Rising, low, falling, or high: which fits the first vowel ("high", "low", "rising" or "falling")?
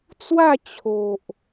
falling